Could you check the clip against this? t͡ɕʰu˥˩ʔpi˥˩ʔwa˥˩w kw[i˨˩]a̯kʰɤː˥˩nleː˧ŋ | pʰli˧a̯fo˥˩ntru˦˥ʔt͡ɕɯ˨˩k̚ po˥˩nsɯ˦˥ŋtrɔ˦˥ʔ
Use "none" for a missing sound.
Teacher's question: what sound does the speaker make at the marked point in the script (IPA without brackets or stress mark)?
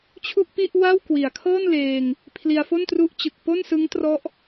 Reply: i˨˩